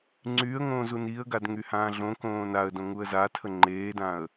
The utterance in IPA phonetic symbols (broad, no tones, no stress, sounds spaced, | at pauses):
ŋ͡ǀ yː ə̯ ŋ õː z u n i ə̯ ɡ a d ŋ y h ãː ɮ õ k õː n a ə̯ d õ ŋ u ə̯ z a tʰ ə ŋ͡ǃ eː d ã ə̯